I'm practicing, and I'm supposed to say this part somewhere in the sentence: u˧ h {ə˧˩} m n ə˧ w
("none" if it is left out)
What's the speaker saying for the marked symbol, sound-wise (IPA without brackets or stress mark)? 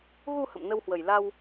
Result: ə̰˧˨